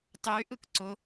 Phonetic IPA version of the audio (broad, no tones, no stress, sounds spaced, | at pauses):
tˤ y ʔ ɯ k ǀ ʊ